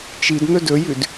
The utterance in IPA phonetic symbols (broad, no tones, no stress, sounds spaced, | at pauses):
t͡ʃ i d n̪ ɵ d ɵ j ʉ d